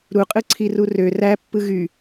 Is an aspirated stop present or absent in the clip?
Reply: present